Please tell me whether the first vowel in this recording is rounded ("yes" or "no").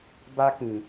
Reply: no